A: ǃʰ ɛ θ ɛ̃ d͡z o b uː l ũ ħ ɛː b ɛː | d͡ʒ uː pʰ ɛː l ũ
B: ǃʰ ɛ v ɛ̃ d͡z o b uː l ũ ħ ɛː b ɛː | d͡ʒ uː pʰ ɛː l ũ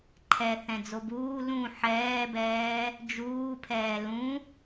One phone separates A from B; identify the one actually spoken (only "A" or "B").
A